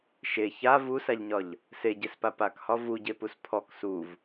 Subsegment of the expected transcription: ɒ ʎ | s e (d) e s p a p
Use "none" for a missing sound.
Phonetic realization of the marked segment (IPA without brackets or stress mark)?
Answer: ɟ